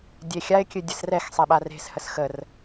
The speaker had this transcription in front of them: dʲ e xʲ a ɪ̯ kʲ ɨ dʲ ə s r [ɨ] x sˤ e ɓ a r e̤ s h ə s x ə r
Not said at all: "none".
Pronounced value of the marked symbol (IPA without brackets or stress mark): ɛ